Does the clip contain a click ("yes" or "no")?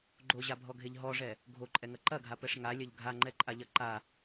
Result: yes